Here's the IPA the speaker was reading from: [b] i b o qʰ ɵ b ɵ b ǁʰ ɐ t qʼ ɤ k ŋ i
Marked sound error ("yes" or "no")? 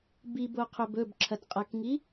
no